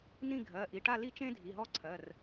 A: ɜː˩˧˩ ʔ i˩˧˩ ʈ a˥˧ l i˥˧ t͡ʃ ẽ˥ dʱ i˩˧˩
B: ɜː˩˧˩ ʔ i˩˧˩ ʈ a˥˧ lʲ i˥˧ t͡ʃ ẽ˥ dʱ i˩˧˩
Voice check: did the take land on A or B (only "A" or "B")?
A